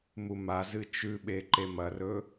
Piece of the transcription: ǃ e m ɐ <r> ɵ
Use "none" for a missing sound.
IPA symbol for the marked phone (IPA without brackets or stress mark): r